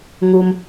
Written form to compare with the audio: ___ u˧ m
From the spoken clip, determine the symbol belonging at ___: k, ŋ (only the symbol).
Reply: ŋ